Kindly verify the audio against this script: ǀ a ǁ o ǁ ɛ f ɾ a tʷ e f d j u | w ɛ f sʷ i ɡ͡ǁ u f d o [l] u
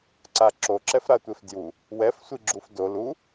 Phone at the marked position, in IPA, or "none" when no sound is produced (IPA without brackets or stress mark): l